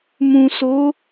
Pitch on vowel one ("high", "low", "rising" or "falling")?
low